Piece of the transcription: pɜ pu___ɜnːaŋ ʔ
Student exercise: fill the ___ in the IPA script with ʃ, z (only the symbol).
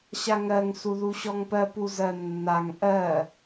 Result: z